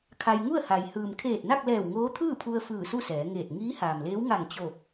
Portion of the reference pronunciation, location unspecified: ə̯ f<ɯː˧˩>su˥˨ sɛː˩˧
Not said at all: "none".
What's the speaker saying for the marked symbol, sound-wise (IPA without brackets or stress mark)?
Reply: ɯː˧˩